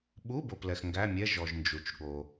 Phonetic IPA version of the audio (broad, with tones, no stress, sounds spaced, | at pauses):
ɓ u˧˥˧ b o˨ p l ɛ˨ x ŋ ɡ æ˧˥˧ mʲ ɛ˧˥˧ ʒ ɔ˨ ʒ n d͡ʒ u˨ t͡ʃ ɠ o˨